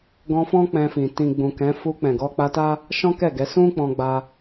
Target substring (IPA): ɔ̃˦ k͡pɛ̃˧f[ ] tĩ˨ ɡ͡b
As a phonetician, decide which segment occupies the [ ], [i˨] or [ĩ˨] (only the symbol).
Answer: ĩ˨